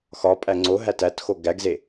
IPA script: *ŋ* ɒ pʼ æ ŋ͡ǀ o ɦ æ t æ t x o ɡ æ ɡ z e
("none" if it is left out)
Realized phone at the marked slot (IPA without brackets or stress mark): x